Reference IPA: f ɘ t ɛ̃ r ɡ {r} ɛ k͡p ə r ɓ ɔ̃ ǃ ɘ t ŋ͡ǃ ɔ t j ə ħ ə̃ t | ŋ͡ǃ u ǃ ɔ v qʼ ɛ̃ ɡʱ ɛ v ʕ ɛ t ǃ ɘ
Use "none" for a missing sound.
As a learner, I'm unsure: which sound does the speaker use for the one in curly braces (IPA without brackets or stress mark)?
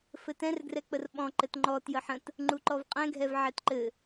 r